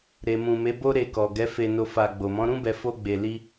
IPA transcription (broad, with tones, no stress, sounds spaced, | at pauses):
ɾ e˨ m ũ˨ m e˨˦ b o˦ ɾ e˧ k ɔ˨ ɡ ɛ˨˦ f e˧ n o˧ f a˧ ɡ͡b o˨ m ɔ̃˨˦ ɾ ũ˦ b ɛ˧ f o˦ ɡ͡b e˧ l i˦